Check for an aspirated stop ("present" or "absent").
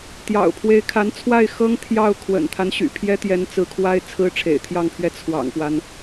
present